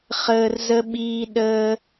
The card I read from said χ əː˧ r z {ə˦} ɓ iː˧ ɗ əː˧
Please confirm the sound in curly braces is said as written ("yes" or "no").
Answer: yes